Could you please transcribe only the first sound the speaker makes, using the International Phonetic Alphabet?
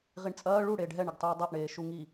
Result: ʁ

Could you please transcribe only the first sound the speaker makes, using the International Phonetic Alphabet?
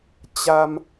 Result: t͡ɕ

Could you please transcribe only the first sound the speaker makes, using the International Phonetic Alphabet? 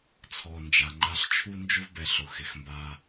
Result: t͡sʰ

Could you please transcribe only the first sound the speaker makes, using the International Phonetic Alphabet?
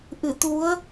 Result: ʔ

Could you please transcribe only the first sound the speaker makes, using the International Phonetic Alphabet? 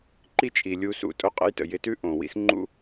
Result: ǃ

